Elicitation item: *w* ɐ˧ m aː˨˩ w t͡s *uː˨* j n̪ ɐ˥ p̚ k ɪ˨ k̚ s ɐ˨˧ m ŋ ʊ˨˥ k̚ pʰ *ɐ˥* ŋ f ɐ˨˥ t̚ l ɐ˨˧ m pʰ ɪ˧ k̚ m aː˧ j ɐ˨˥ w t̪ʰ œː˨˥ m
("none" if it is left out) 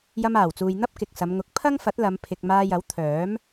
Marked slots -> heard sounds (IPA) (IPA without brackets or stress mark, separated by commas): j, uː˨, ɐ˥